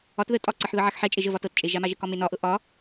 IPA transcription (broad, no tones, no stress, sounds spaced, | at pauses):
ɒ t ð ə tʼ ɒ ǀ ɤ ħ ð ɤ ʕ a x ħ ɛ t͡ʃʼ e ʒ ə v ɒ t ɤ t t͡ʃʼ e ʒ a m a ʒ ə k ɒ m e n ɒ ʔ ɤ ʔ ɒ